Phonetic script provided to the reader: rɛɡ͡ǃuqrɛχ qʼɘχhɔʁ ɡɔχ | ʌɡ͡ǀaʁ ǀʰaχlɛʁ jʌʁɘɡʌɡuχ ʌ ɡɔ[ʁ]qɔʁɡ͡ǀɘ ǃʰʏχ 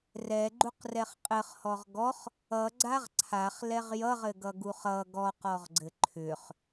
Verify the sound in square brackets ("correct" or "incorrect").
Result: incorrect